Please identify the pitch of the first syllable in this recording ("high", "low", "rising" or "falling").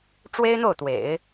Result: high